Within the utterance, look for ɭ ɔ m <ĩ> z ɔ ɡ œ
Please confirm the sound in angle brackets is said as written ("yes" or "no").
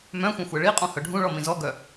yes